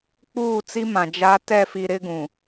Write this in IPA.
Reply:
k͡p uː˦˨ t͡s i˦ m ã˨ d͡ʒ a˨˦ t ɛ˦˨ f i˨ ɾ ɪ˦ ɡ ũ˨

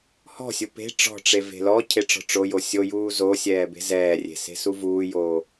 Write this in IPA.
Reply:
h ɔ̤ sʲ u p e̤ ʈ͡ʂ ɔ̤ ʈ͡ʂ e v e̤ l ɔ cʰ e ʈ͡ʂ ɔ̤ ʈ͡ʂ o j o sʲ o j uː z o sʲ ɛː b e̤ z ɛː rʲ e̤ s e̤ s u v uː j oː

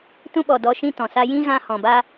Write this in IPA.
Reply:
t ũ˦ ɓ ɔ˨ d ɔ˨˦ ʃ ĩ˦ t ɔ̃˨ s a˦ j ĩ˦ ɣ ã˧ h ɔ̃˨ b a˦

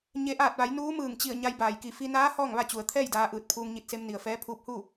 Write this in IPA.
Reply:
ɲ e˩˧ ʔ aː˧˩ t̚ ʋ a˩˧ j n uː˧˥ m ɯː˧˩ ŋ t͡ɕ i˧˩ ə̯ ɲ a˧ j b aː˩ j k i˧˩ f i˧ n aː˧˥ h ɔː˥˨ ŋ ʋ a˥˨ t͡ɕ u˩ ə̯ t̪ʰ ɛː˥˨ j d aː˧ ʔ ɯː˧˩ t̚ pʰ uː˧ ŋ ɲ i˧˩ t̚ s e˧ m n i˩ ə̯ f ɛː˧˥ pʰ uː˧ p̚ h u˥˨

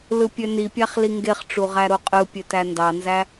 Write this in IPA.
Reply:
l ɯ pʲ ø n i pʲ æ χ l i ŋ ɡ e χ ʈ͡ʂ u ʁ æ ɾ o qʼ ɯ pʲ ø t æ n d ɑ n z æ

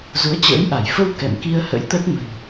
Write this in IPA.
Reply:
z u˨˦ ə̯ t͡ɕ ə̰ː˧˥ j ʔ a˧˩ j f ə˧ w k ɛ̰˧˨ m k i˧ ə̯ h ə̰˧˥ j t̪ ə˦˥ t̚ m ə̤˨˩ n

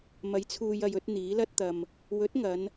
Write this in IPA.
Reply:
m ɐ˨˥ j t͡sʰ uː˨ j ɐ˨ j ɵ˨˥ t̚ n̪ iː˨˥ l ɐ˥ t̚ t̪ ɐ˧ m | w ɵ˨˥ t̚ ŋ ɐ˨˧ n

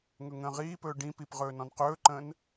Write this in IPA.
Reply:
ŋ ɵ ŋ ə̃ː ʁ iː p ɵː ɖ ĩ p i p ʁ ɵː n ɔ̃ n q ɵː ǃ ə̃ː n

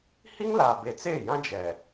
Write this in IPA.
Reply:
h i˦ ŋ l aː˨ b e˨ t͡s eː˦˨ j ã˦ d͡ʒ ɛ˨

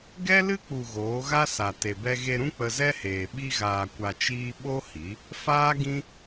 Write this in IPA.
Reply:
ɡ ɛ˦ l ɨ˦ k͡p u˨ ɣ oː˨˦ ɣ a˦ s a˨ t e˨ b ɛ˧ ɣ e˧ ɾ ũ˦ k͡p ə˧ z ɛ˦ h eː˨ ɓ i˧ ɣ aː˨ kʷ a˨ t͡ʃ iː˧ ɓ o˦ h i˨˦ | f aː˦ ɡ ĩ˦

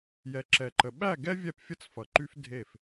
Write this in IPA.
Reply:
j ɛ˨ ǁ ɛ˨ ǃ ə˨ ɓ æ˦˨ ɡ ɛ˦ vʲ ɛ˦˨ p fʲ ə˦ t͡s f ʌ˨ ǃ y˦ f dʱ e˦˨ f

